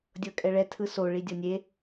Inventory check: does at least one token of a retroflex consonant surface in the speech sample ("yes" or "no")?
yes